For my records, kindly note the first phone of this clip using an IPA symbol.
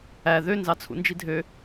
æ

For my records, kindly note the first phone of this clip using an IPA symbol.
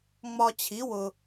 ŋ͡m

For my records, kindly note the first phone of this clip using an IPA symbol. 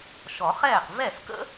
ʃ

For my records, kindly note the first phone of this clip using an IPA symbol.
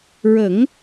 ɹ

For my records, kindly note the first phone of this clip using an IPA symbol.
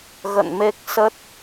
ɣ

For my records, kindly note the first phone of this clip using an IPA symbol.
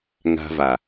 ŋ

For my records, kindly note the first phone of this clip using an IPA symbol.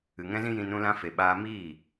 ɨ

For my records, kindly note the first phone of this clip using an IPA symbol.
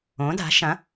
õ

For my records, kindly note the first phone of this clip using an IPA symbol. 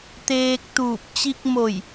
t̪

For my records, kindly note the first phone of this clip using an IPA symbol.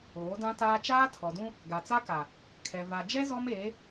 oː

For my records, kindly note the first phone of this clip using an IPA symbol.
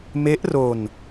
m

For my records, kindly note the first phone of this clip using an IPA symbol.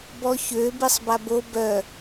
b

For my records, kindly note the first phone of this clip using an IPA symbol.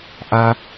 ʔ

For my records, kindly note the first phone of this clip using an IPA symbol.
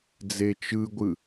d͡z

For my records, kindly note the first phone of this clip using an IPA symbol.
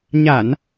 ɲ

